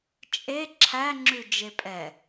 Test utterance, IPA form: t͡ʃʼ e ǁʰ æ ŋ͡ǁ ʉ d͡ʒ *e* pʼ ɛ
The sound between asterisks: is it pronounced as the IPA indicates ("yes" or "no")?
yes